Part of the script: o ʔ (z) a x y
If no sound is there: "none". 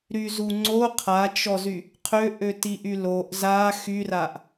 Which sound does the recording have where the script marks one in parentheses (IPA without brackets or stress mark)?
z